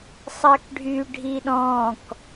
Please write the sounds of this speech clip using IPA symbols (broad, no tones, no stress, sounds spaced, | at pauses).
sˤ ɜ k ɖʱ y ɖʱ i ɗ ɔ̃ː k